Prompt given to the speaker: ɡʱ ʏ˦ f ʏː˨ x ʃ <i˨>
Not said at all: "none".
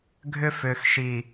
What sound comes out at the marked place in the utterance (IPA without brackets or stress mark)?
i˨